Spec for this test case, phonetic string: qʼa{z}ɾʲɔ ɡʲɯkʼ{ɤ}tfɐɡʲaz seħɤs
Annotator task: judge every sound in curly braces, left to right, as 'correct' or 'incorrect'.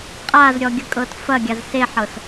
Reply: correct, correct

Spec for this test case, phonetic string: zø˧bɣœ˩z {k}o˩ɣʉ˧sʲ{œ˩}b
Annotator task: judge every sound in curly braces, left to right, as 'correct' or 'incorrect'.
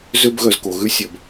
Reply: correct, correct

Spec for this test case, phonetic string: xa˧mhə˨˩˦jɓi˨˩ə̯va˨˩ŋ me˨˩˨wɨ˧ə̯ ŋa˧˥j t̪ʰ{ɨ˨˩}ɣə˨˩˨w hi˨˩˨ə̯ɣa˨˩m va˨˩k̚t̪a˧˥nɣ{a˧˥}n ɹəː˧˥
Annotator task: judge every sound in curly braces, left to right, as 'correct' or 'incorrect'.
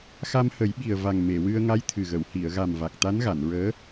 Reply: correct, incorrect: a˨˩˨

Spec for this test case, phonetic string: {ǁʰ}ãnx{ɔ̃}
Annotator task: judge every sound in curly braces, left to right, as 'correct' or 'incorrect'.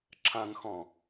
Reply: correct, correct

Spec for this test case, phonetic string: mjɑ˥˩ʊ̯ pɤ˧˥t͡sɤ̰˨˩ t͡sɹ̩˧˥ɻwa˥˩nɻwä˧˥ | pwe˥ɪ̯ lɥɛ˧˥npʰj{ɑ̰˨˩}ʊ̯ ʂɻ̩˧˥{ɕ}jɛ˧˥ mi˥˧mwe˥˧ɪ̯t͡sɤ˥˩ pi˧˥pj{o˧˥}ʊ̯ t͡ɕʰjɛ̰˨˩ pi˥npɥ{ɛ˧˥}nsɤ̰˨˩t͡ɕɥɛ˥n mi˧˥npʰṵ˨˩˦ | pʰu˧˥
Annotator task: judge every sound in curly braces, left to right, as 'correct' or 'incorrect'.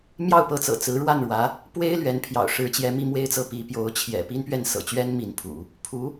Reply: correct, incorrect: t͡ɕ, correct, incorrect: ɛ˥˩

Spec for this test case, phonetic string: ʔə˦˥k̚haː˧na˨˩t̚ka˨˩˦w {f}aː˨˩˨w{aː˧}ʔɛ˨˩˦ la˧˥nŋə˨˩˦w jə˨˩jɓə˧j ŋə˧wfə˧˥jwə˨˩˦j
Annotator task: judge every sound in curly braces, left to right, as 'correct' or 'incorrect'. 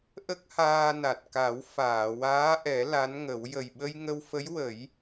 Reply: correct, incorrect: aː˧˥

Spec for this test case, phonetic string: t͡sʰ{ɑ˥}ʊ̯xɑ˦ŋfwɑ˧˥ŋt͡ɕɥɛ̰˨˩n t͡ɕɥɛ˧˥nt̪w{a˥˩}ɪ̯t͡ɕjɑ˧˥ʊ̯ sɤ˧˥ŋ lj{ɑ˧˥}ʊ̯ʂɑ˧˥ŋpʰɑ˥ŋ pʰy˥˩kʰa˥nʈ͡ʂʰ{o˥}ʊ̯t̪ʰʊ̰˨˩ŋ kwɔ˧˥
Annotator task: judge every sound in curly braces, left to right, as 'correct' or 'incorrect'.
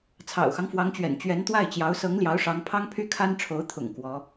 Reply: incorrect: ɑ̰˨˩, correct, correct, incorrect: o˧˥

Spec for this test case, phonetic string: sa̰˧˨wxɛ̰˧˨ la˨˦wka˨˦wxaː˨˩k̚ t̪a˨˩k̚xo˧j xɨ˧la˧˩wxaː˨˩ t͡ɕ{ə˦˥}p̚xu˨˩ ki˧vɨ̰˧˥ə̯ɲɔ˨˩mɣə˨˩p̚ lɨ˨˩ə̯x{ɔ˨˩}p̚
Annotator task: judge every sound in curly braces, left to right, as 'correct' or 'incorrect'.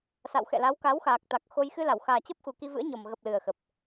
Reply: correct, incorrect: ə˨˩

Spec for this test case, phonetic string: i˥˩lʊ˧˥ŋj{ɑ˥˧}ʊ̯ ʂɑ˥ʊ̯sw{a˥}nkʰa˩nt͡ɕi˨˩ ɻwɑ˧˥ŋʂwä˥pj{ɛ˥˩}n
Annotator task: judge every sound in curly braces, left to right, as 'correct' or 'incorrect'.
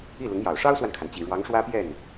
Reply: incorrect: ɑ˨˩, incorrect: a˨, correct

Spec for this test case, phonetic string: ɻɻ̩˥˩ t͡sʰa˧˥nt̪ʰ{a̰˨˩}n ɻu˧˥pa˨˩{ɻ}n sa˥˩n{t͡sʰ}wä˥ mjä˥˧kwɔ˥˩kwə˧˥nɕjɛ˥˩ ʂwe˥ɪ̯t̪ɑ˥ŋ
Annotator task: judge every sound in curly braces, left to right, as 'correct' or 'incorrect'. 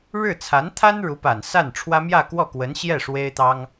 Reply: incorrect: a˥, incorrect: none, incorrect: ʈ͡ʂʰ

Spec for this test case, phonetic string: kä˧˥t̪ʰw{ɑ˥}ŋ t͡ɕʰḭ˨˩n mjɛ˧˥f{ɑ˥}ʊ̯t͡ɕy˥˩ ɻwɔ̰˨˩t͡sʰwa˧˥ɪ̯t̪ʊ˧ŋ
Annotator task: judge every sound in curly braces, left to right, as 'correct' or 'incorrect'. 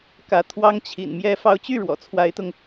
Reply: correct, incorrect: ɑ˧˥

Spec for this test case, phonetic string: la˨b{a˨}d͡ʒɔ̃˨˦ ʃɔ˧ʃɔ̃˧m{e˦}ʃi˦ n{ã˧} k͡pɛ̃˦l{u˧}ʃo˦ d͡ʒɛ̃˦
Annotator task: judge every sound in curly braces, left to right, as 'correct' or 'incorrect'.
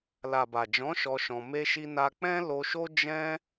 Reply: correct, correct, incorrect: a˧, incorrect: o˧

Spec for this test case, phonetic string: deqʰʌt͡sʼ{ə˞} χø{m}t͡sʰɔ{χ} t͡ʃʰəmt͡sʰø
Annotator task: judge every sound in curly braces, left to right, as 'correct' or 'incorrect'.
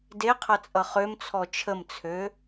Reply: incorrect: ʌ, correct, incorrect: none

